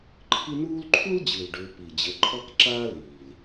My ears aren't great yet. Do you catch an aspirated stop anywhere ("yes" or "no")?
yes